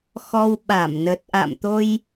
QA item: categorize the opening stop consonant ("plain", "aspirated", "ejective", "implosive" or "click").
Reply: implosive